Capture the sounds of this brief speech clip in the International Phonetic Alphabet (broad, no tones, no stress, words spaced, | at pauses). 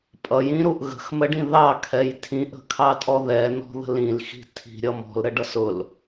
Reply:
pʼʌjĩɾuʔ ɣə̤xməɖĩ ðɑkʰɛj tʰĩʔə̤kʰɑtʼɔ ðɛnɔ̤ðə̤l ĩlxi̤ tʰi̤ɾʲʌ mɔ̤lɾəɖʌs ʊl